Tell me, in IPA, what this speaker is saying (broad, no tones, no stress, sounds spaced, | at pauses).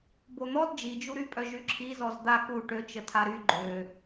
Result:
b o n̪ ɔ d d͡ʒ i d͡ʒ u ɾ y pʼ œ ʒ y ǁʰ i z ɔ z d̪ a k u ʈ ø t͡ʃ ə tʰ a ɾ y ɡ͡ǃ ø